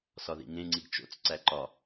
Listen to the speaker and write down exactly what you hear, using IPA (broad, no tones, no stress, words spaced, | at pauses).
sɒðḭŋẽŋ͡ǀiɡ t͡ʃo̰t͡s ǀæǃɒ